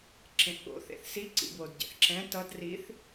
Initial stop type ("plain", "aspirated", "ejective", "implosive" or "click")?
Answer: click